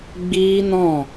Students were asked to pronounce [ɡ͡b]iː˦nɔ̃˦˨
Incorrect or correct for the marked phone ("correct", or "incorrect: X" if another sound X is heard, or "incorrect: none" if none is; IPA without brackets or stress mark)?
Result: correct